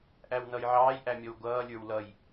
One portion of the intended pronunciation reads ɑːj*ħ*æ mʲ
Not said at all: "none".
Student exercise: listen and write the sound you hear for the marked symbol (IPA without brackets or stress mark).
ʔ